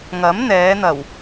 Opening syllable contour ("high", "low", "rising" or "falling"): rising